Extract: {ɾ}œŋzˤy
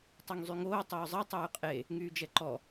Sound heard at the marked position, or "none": tˤ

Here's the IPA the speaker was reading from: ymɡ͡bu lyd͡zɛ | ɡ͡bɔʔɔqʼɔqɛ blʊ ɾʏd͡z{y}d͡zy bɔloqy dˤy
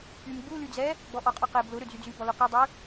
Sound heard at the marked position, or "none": y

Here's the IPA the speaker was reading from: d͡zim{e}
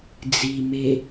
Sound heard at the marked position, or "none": e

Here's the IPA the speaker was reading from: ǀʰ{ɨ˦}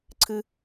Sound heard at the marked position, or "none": ɨ˦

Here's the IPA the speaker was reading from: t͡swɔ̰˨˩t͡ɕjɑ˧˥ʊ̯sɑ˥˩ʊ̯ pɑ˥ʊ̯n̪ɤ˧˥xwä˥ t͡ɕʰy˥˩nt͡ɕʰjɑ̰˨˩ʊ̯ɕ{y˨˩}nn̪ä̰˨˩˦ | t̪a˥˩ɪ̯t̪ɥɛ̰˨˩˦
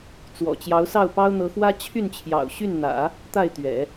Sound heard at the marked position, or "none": y˥˩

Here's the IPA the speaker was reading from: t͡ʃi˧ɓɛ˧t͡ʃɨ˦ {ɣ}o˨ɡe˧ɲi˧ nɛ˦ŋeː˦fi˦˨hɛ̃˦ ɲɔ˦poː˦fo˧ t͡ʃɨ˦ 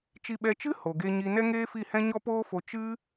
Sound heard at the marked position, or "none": h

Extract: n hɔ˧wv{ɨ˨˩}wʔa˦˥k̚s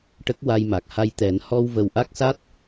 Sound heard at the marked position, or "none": ə˨˩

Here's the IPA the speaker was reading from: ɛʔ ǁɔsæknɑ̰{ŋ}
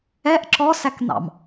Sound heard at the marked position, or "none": m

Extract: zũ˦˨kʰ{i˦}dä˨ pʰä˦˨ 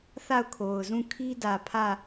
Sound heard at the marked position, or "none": i˦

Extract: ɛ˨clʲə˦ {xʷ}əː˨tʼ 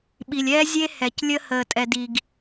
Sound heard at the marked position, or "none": h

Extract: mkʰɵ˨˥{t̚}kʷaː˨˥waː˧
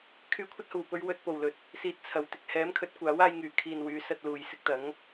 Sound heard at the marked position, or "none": t̚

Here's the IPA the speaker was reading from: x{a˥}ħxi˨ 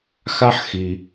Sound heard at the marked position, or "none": a˥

